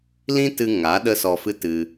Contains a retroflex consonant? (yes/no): no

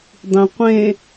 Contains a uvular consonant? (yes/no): yes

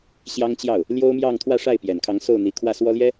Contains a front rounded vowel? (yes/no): no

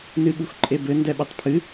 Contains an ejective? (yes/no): yes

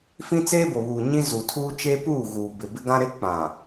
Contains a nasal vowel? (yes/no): yes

